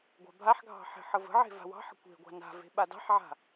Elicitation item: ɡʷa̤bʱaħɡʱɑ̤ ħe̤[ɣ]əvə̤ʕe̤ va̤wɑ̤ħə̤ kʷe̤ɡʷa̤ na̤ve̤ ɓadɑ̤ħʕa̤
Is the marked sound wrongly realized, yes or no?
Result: yes